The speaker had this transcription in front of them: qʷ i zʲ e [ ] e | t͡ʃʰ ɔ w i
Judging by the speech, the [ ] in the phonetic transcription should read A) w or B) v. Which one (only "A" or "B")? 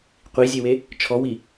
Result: A